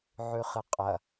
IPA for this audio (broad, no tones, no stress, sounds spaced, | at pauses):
ʕ ʉ χ ɨ qʼ ɐ